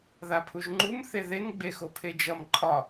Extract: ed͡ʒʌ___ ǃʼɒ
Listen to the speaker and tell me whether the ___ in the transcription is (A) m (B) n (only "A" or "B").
A